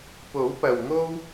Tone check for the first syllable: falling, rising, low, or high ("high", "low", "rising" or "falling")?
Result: rising